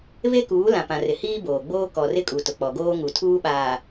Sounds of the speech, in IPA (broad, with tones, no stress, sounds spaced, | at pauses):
β e˦ k uː˨˦ l ã˨ p ã˨ r ɪ˨ h iː˦ b oː˨ ɡ͡b oː˦ k ɔ˨ r ɪ˦ kʼ u˨ t ʊ˨ k͡p ɔ˨ ɡ oː˦ ŋ u˨ tʰ uː˦ ɓ aː˨